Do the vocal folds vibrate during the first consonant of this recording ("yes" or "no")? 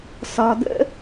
no